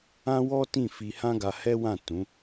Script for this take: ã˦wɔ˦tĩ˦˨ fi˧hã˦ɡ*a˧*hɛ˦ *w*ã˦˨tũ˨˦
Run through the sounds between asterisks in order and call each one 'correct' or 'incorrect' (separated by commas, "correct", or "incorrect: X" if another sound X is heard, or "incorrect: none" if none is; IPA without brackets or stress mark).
correct, correct